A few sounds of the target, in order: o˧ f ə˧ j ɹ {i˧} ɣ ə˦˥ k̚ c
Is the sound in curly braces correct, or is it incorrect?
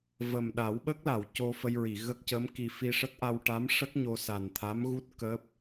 incorrect